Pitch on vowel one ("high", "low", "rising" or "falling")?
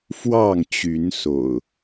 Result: falling